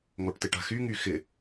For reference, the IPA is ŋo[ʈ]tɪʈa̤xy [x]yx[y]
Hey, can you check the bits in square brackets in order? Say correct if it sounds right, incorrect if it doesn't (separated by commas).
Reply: correct, incorrect, incorrect